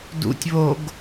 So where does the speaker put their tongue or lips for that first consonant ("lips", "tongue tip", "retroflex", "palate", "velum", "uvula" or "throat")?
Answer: tongue tip